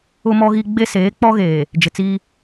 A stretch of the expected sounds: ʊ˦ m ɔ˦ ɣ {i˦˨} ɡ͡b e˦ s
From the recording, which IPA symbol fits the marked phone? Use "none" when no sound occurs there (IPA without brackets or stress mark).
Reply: i˦